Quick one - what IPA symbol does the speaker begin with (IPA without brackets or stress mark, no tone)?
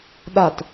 ɗ